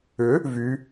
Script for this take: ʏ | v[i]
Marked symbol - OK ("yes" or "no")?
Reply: no